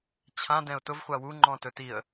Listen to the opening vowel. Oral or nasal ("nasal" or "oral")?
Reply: nasal